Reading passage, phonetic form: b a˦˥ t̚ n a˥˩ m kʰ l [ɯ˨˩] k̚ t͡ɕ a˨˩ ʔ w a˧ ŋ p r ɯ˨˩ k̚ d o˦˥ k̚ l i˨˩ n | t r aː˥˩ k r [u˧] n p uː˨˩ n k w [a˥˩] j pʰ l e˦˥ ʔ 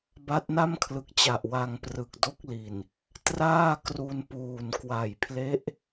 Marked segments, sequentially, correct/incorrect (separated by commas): correct, correct, incorrect